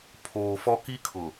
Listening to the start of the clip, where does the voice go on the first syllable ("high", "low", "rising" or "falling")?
low